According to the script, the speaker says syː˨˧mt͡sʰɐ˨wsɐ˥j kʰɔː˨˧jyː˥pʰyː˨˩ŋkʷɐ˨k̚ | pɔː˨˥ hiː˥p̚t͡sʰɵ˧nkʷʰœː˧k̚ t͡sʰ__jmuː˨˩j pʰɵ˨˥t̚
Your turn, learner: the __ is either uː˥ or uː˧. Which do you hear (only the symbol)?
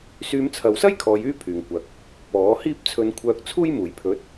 uː˥